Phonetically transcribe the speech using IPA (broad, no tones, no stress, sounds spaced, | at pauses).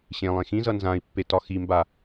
ɕ ẽ lˠ ẽ x ĩ z ʌ n z ã i̯ pː e t ɒ x i m b a